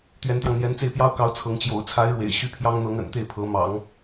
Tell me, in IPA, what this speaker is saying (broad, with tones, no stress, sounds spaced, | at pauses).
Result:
t̪ ɥ ɛ˧˥ n t̪ j ɑ˧ ŋ n̪ j ɛ˧˥ n t͡s e˥˩ ɪ̯ p j ɑ˥ ʊ̯ k ɑ˧˥ ʊ̯ t͡sʰ ɤ˧˥ ŋ t͡ɕ j o̰˨˩ ʊ̯ t͡sʰ a˧˥ ɪ̯ ɻ w ḛ˨˩ ɪ̯ ɕ y˥ pʰ j ɑ˥ ŋ n̪ ɤ˧˥ ŋ ə̰˨˩ n t̪ e˥˩ ɪ̯ pʰ ɤ˧˥ m ɑ̰˨˩˦ ŋ